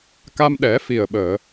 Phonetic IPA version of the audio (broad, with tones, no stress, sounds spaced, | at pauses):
k a˧ m ɗ ɛ˨˩˦ f i˨˩ ə̯ ɓ əː˨˩˨